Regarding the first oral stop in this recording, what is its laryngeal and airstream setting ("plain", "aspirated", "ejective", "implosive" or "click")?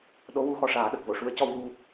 implosive